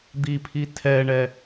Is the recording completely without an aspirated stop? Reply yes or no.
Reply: no